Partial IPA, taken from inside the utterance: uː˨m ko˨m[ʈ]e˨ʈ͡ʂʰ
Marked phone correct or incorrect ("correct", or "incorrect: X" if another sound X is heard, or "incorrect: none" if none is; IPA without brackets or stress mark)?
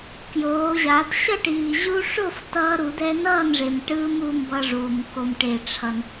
correct